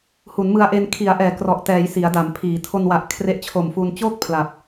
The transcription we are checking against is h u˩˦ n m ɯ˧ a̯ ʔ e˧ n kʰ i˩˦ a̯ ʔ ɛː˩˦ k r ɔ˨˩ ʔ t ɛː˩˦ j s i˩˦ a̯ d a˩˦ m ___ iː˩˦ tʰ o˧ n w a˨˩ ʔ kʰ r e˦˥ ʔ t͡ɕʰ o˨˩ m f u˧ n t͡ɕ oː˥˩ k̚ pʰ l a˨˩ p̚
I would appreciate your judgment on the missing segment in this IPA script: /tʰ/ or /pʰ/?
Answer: pʰ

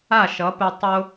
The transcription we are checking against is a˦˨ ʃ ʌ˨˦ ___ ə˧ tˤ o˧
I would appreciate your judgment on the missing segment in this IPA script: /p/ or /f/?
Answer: p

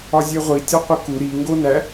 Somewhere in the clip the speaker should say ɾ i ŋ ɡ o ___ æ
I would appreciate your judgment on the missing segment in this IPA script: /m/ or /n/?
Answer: n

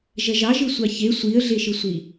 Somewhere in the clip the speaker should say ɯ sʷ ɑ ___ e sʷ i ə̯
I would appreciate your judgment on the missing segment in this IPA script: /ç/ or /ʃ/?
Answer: ç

